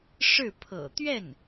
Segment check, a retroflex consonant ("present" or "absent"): present